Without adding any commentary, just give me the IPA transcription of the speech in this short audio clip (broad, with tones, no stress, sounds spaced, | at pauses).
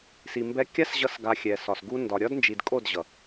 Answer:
s i˨ m b ɛ˧ kʲ a˦ s ʑ ʌ˦ s ɡ a˧ xʲ ɛ˨ s ɒ˨ s ɡ u˦ n d ɒ˨ ɾʲ ɒ˦ d n d͡ʒ i˨ d kʼ o˦˨ d ʑ ʌ˨